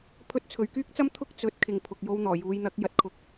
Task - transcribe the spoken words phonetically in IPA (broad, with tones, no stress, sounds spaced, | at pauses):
pʰ ɵ˧ t̚ t͡sʰ ɵ˨˧ ɥ k yː˥ k̚ t͡s ɐ˥ m t̪ʰ ʊ˥ k̚ t͡s ɵ˨˥ t̚ kʰ ɪ˨ ŋ pʰ ʊ˨ k̚ j o˧ w n̪ ɔː˨˩ j uː˨˧ j n̪ ɐ˨˥ k̚ j ɐ˨ t̚ kʰ ʊ˨˥ k̚